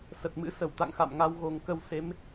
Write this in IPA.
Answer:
s ə˨˩ t̚ m ɨ̰˧˥ s ə˧˩ w t̪ a̰˧˨ ŋ x a̰˧˨ m ŋ a˧ w ɣ o˨˩ ŋ k ə˧ w s e˨˦ m

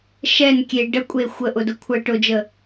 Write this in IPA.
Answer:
ʃ ɛ n kʲ e ɖ ə kʷʼ e xʷ ə ʔ ʊ d ʊ kʷʰ ə ʈ ʊ d͡ʒ ə

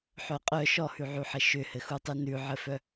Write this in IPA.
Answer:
ħ œ qʼ œ ʃ ɔ h ʉ ʕ ʉ ħ ɘ ʃ ʏ h ɘ x u tˤ i n ʉ ʕ ɘ f œ

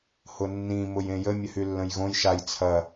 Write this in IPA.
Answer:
h ʊ nː ĩ m ʊ j ẽ j ə mʲ ə h y lː ə̃ j ɣ õ j ʃ a j t͡sʰ ɐ

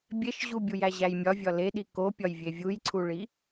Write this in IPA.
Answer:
bʲ e ʃ ʑ u bʲ u j æ ʑ æ j mʲ ɒ vʲ ɒ l e ɗ i k o pʲ ɒ j vʲ e vʲ u j ǀʰ u ɭ i

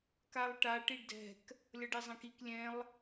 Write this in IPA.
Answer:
k a lˠ ʈ a ʈ i ɖ d ɛ̤ k | lʲ ʌ ɖ e zˤ ɛ̃ k i k lʲ ɛ̃ lˠ

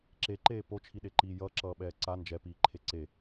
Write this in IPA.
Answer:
ǁ e ǃ eː p o t͡ʃʰ i ɗ e ǃ iː j ʌː ǁ ʌː ɓ ɛː ǀ a n d͡ʒ ɛ p iː ǃʰ e ǀ e

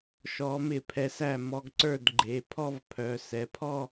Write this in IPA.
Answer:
ʃ ɔ˧˥ m ɪ˥˩ pʰ ɛ˧ s æ˥˩ m ɔ˧ ɡ ǀ ə˞˥˩ d ɡ͡ǃ e˩˧˩ pʰ ɔ˥˧ v pʰ œ˩˧˩ s ɛ˩˧˩ pʰ ɔ˥˧

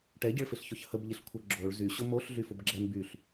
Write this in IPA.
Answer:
ʈ ɛ ɟ ɪ ɭ f ɪ ɬ ç ʊ ç h ə b ʎ ɪ ɬ kʷʰ ə ɡ͡ǁ o ɭ z y ɕ ʊ m o ɬ ɮ y f ʊ b ɡ͡ǁ ɛ m b y ɬ

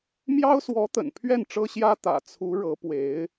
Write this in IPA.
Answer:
m j ɑ˥ ʊ̯ s w ɔ˧˥ t̪ ə̰˨˩ n pʰ ɥ ɛ˥˩ n ʈ͡ʂ ɤ˥ ɕ j ä˥ t̪ ä̰˨˩ t͡sʰ u˧˥ ɻ ɤ˧˥ p w e˧˥ ɪ̯

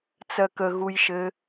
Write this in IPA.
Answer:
t͡s ɜ k ə ɣ u j ʃ ɘ

